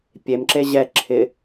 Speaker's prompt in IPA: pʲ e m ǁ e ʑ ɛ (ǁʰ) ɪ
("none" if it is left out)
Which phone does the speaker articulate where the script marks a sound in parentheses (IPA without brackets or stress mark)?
ǁʰ